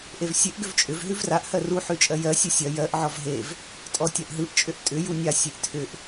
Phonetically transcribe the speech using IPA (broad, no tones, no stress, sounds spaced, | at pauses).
ʔ e v sʲ e ʔ ɡ ʏ v t͡ʃʼ ʏ v ɦ ʉ v r a ʔ h ɜ r u ħ ʉ t͡ʃʼ ɜ j ɜ sʲ ʉ sʲ ɜ j ɜ ʔ ʕ ɔ v ɦ e v | tʼ ɔ tʲ a ʔ ɦ ɯ ʔ t͡ʃʼ ʏ ʔ tʼ ʏ j u nʲ a sʲ e ʔ tʰ ʏ ʔ